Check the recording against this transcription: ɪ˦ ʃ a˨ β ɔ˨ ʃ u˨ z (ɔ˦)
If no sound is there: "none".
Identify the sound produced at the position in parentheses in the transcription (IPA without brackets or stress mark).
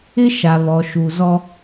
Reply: ɔ˦